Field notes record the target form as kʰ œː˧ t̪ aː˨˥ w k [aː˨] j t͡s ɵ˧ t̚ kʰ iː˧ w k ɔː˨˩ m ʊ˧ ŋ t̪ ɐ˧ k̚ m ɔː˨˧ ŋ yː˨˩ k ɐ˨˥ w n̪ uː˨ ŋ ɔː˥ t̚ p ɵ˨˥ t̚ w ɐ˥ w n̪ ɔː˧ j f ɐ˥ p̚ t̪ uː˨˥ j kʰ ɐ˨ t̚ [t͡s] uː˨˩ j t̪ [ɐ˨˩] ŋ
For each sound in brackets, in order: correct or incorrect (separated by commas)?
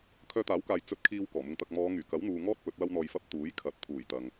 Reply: correct, incorrect, incorrect